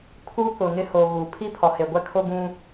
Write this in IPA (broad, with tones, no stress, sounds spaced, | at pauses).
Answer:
kʰ u˦ k ʊ˨ ŋ ɪ˦ h o˨ ɣ u˨ pʰ i˦ pʰ ɔ˨ h e˨ ɡʷ ɛ˦ kʰ o˦ ɡ ũ˦